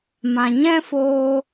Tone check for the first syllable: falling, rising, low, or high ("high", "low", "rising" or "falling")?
low